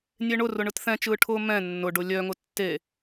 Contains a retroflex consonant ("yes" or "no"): yes